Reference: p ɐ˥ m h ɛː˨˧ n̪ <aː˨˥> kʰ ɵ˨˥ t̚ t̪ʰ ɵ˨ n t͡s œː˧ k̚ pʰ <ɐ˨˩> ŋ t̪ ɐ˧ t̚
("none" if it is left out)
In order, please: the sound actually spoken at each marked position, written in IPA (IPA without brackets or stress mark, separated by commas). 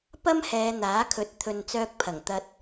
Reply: aː˨˥, ɐ˨˩